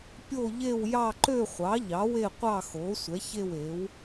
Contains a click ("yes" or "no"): yes